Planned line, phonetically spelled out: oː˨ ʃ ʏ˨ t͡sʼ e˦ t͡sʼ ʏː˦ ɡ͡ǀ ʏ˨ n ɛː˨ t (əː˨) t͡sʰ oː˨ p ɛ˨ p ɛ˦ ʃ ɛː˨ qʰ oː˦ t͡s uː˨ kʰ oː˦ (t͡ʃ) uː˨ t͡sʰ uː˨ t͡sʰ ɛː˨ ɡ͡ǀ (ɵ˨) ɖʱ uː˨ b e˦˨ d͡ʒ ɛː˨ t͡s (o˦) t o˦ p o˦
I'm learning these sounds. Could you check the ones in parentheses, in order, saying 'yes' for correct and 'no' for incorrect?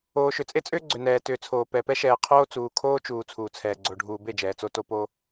no, yes, no, yes

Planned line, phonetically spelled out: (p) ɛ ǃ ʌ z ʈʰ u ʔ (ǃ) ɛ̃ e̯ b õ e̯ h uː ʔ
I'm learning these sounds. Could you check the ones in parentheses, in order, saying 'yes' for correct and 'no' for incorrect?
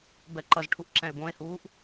no, no

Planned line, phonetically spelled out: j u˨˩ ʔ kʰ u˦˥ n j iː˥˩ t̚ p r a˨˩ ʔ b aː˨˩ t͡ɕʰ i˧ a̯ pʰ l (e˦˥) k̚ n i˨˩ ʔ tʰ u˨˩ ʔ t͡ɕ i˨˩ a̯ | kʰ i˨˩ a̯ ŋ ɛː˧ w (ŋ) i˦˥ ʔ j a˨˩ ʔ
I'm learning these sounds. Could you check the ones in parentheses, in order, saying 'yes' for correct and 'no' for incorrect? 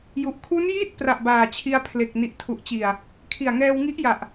no, yes

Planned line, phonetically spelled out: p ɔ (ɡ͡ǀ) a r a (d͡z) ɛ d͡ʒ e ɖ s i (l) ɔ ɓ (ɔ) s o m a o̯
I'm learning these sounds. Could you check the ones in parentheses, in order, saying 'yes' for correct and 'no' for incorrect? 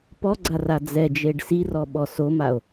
yes, yes, no, yes

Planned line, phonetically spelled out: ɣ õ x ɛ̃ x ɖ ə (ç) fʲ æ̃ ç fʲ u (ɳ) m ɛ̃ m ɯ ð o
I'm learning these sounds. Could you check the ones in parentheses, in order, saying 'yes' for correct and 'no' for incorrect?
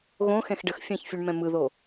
no, yes

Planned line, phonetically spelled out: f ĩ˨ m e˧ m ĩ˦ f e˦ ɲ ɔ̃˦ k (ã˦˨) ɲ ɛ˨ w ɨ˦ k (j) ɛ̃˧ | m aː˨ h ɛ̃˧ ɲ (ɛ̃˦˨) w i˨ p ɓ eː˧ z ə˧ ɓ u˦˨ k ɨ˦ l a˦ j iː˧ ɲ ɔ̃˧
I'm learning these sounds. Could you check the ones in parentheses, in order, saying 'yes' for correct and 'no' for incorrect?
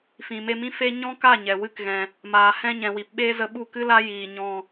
no, no, no

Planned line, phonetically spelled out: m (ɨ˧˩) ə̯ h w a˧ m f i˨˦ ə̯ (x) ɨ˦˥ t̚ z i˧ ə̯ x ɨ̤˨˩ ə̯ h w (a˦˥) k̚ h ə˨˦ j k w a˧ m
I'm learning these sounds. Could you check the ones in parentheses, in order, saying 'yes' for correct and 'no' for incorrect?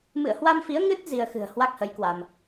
no, no, yes

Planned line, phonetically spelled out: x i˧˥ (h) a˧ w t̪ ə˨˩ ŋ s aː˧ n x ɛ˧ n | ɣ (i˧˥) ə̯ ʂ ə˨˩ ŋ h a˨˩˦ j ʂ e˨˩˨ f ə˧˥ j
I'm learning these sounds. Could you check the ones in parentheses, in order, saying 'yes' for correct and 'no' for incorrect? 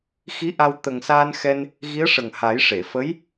no, yes

